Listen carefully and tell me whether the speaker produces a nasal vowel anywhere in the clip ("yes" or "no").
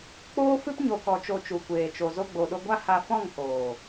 yes